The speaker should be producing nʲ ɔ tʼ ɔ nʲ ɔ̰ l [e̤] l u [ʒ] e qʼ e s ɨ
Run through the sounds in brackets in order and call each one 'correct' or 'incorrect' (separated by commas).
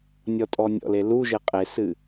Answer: incorrect, correct